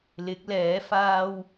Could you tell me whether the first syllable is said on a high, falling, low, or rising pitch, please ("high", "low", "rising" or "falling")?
rising